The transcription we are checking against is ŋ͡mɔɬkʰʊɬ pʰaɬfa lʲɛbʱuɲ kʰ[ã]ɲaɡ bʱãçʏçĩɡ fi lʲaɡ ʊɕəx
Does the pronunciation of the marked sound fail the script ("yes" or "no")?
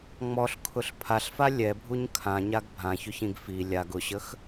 no